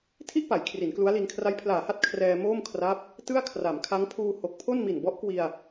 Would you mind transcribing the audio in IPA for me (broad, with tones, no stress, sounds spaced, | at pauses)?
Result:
tʰ i˥˩ ʔ p a˩˦ j kʰ r i˩˦ n k l u˦˥ a̯ l i˧ n kʰ r a˦˥ j pʰ l aː˨˩ h a˥˩ t̚ kʰ r ɛː˧ m oː˥˩ m kʰ r a˦˥ p̚ | t ɯ˥˩ a̯ kʰ r a˩˦ m kʰ a˦˥ ŋ pʰ uː˧ h o˨˩ k̚ pʰ o˥˩ n m i˨˩ n b ɔ˦˥ ʔ k w i˧ a̯